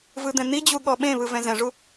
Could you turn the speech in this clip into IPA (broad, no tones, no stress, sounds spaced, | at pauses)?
v ɯ d̪ ɛ̃ n̪ i d͡ʑ u ɠ ɔ ɓ ẽ β ɯ v ɛ̃ z ɛ̃ ʐ u